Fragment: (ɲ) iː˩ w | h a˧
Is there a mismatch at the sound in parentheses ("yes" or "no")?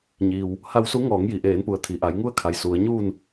no